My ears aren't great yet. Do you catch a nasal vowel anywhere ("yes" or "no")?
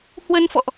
no